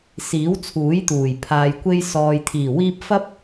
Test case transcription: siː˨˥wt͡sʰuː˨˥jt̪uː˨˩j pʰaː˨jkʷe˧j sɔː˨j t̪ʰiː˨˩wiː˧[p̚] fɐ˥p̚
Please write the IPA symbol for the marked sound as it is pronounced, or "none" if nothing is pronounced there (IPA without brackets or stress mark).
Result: p̚